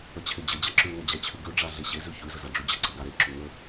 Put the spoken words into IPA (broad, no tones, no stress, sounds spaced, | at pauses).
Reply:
ə t͡ɕʰ e d͡ʑ ə d͡ʑ a ǁ ʉ ŋ ə d͡ʑ a t͡ɕʰ ʉ ɡ ʉ ɖ͡ʐ a ɮ e ɕ e z ʉ ç ʉ z ə z a ɖ͡ʐ ʉ d͡ʑ ə ǀ ə ɡ a ɾ e ǁ u ŋ ə